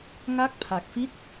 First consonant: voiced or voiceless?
voiced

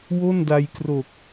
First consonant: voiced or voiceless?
voiced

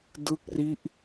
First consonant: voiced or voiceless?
voiced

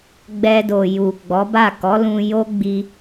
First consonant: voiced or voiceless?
voiced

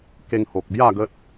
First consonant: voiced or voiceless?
voiceless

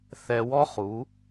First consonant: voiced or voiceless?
voiceless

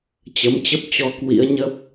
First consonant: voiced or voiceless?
voiceless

